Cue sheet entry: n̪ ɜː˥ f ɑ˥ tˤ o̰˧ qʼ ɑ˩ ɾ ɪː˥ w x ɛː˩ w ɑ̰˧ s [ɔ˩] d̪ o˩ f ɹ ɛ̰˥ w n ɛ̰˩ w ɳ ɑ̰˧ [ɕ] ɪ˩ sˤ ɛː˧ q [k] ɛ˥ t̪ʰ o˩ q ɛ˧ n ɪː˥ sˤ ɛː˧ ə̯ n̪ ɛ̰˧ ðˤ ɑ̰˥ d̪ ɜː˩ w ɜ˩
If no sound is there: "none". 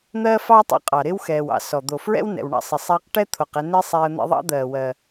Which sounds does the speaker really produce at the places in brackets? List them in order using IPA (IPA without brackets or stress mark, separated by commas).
ɔ˩, sˤ, ʈ